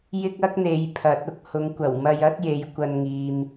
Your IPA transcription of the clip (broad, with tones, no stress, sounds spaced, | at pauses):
j ɪ˥ k̚ ɐ˥ k̚ n̪ e˨˥ j pʰ ɐ˨˥ t̚ ʊ˥ k̚ h ʊ˨ ŋ kʷ ɐ˨˩ w m ɐ˧ j ɐ˥ t̚ j e˨˥ j kʷ ɐ˧ n ŋ iː˨ m